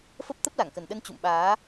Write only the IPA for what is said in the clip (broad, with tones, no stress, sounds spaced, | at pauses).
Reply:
f ə˦˥ p̚ t̪ ə˦˥ p̚ l a˧˩ ŋ k ə˨˩ n ɗ ə˧ n t͡ɕ ṵ˧˨ m ɓ aː˨˦